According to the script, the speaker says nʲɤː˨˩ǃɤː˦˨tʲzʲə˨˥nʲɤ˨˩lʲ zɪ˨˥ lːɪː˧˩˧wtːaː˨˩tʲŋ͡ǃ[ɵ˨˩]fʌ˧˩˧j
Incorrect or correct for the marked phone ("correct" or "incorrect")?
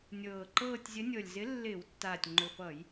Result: correct